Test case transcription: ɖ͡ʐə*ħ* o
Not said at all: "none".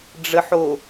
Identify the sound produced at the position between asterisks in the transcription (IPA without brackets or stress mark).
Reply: ħ